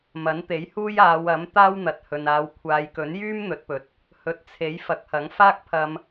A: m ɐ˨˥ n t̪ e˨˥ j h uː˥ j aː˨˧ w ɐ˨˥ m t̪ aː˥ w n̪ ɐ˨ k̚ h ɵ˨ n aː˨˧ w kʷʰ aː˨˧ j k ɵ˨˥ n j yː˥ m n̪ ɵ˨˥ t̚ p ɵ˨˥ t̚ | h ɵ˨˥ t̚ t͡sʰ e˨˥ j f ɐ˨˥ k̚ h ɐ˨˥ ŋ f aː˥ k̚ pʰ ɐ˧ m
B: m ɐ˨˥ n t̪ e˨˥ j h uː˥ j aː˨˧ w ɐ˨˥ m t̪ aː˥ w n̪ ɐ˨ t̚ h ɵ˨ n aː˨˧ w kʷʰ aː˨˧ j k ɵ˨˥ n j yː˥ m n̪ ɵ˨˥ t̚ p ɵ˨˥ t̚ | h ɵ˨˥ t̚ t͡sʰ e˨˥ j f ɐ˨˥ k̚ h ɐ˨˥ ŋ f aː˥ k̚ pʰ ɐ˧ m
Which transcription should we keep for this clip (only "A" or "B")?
B